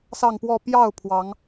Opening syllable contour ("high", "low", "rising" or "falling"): falling